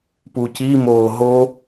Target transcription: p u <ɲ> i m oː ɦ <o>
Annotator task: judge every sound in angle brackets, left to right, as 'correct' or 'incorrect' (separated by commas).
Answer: incorrect, correct